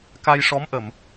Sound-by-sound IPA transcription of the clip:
k a˧ j ʂ ɔ˧˥ m ʔ ə˨˩˨ m

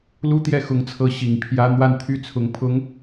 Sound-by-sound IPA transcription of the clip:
l u˥ t̪ j ɛ˥˩ x ʊ˧˥ ŋ t͡sʰ ɤ˧˥ ɕ i˨˩ ŋ pʰ j ä˥ n̪ w a˥˧ n t̪ʰ y˥˩ t͡sʰ ʊ˧˥ ŋ pʰ ʊ˧˥ ŋ

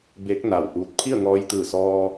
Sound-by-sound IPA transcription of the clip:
b e˧˥ k̚ n a˧˩ w ʔ uː˧ t̚ pʰ i˥˨ ə̯ ŋ ɔː˧ j t̪ ɯː˧˩ s ɔː˧

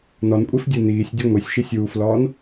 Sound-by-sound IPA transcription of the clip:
n ɒ n kʷʼ e f dʲ u n iː sʲ dʲ o ŋʷ i sʲ ʃ i sʲ uː f l ɒː n

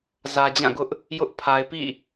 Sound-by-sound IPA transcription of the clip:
z ä˨ d͡ʑ ã˦˨ ɡ ʊ˦ ʔ | j ʊ˦ ʔ pʰ a˨ ɪ̯ p ḭ˦˨

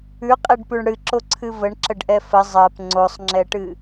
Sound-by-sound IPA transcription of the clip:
ʉ qʼ e ɖ p ʉ ɳ ɽ ɨ ǁ o ǀʰ ɨ v ə ɳ ǁ ə ɖ ʔ ɛ f ə zˤ ɜ p ŋ͡ǀ o sˤ ŋ͡ǁ ɛ ʈ ɨ

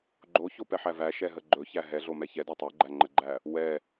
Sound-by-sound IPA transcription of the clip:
ɡ͡ǃ o ç o p ɛ ħ æ v æ ʃ ɛ ɦ ə ɡ͡ǃ ɵ ç æ ɦ ɛ ɮ o m ɛ ç ɛ d ɒ tˤ ɵ ɡ͡ǃ æ ŋ͡ǃ ə ɡ͡ǃ æ | w ɛ

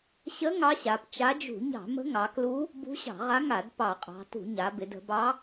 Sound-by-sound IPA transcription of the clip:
ɕ ə˧˥ ŋ ɑ˧˥ ɕ a˩˧ p t͡ʃ a˧˥ d͡ʒ ṳ˧˩˧ ɲ ɑ̤˧˩˧ m ə̤˧˥ ŋ ɑ˩˧ k l u˧˥ | b ṳ˧˥ ɕ ɑ̤˧˩˧ ʁ a˧˥ ŋ a˧˩˧ d p ɑ˧˩˧ qʼ ɑ̤˩˧ t ṳ˧˩˧ ɲ a˩˧ b ɪ˩˧ d ə̤˩˧ b ɑ˧˥

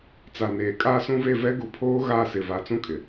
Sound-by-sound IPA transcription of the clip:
t͡s a˨ n eː˨ kʼ a˦ s ũ˦ v e˦˨ v ɛ˦ ɡ u˨˦ pʰ oː˦ ɣ a˦˨ s ɪ˨ v a˨ t͡s ũ˦ kʼ ɪ˨

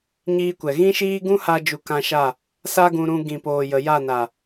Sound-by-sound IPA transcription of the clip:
ɲ iː˧ kʷ ɛ˨ ɣ ĩ˦ ʃ iː˦ ɡ ũ˦ h a˧ d͡ʒ u˧ k ã˧ ʃ a˦˨ | s a˦ ɡ ũ˧ ɾ ũ˧ ɡ ĩ˨ p oː˨ j ə˨ j a˦˨ n a˨

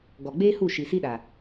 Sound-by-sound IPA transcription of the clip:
ɡ ɔ˨ ɡ͡b eː˦ h u˦˨ ʃ i˨ s i˦ ɗ a˨

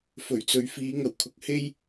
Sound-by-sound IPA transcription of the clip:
f ɵ˨˩ ɥ t͡s ɵ˨ ɥ f iː˨˧ ŋ ɐ˨˩ w kʰ ʊ˨ k̚ h e˧ j

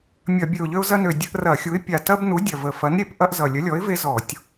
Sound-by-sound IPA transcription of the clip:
mʲ ɐ˧˩˧ bʲ ø˨˩ ʊ̯ ʎ ø˦ ʊ̯ z ɐ˦ n ø˨˩ dʲ ə˦ ʔ r ɐ˧˩˧ xʲ u˨˥ ɪ̯ pʲ a˨˩ t ɐ˦ b n u˨˥ dʲ ɐ˨˩ v ə˨˩ f ɐ˨˥ n ɾʲ e˧˩˧ p ʔ ɐ˦ ʔ z ʌ˨˩ lʲ ə˨˥ lʲ ɔ˨˥ ɪ̯ v e˦ z ɔ˧˩˧ tʲ

